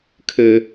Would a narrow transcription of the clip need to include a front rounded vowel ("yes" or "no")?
yes